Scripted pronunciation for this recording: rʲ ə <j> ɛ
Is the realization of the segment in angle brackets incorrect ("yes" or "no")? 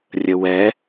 yes